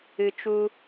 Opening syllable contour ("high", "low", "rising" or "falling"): low